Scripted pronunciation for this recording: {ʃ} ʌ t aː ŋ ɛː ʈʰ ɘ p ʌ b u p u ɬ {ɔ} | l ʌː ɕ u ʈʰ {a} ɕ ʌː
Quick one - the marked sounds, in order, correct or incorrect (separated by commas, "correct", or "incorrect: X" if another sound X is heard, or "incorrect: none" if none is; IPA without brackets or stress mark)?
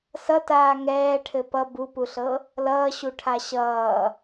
incorrect: s, incorrect: ɤ, correct